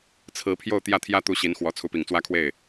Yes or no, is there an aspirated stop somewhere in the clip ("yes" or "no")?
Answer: yes